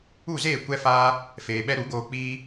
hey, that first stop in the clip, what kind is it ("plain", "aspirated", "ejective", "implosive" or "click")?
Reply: plain